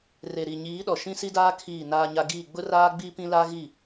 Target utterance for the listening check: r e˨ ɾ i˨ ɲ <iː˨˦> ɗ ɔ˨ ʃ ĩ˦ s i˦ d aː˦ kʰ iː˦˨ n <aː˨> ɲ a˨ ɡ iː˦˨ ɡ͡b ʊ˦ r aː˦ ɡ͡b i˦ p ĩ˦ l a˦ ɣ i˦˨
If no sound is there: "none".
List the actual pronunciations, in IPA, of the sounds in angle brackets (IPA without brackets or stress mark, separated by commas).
iː˨˦, aː˨